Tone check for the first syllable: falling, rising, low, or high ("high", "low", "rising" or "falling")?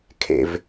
low